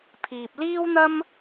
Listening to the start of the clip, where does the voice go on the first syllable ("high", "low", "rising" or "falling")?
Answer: low